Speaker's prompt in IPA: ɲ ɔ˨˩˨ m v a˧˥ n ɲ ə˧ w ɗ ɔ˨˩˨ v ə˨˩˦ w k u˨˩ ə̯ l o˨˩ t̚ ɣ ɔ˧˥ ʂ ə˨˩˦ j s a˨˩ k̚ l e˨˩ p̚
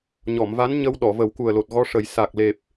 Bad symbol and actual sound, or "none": none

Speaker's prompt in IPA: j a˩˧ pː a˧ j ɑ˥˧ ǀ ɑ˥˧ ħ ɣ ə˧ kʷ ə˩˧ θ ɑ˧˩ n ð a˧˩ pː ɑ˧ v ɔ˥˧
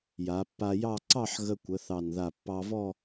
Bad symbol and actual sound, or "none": none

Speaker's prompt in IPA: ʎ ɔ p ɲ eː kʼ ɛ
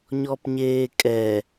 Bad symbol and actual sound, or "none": ʎ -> ɲ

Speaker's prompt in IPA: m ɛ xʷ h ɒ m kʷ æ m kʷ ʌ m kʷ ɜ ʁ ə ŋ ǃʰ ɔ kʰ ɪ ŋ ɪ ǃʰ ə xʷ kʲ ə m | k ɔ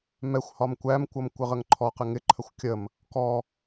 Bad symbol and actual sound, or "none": kʰ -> q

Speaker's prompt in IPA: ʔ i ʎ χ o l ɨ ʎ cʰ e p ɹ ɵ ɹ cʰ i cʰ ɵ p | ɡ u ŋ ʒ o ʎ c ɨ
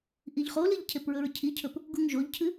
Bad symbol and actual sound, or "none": c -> cʰ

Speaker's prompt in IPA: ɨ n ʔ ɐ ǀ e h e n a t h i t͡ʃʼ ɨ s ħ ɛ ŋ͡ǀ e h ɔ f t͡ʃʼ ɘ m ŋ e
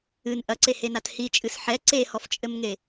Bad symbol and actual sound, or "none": ŋ͡ǀ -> ǀ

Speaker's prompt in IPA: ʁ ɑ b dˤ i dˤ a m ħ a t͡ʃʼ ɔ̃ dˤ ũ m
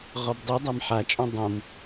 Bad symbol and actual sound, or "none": ɑ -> ɔ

